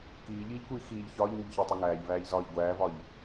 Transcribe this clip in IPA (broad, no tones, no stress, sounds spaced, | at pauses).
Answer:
k iː ʎ iː ʎ kʷ iː x iː ʎ ç ɒː ʎ ŋ u ʎ ç æ tˤ u ŋ æː ʎ v æː ʎ z ɒː ʎ ɡʷ æː v ɒ ʎ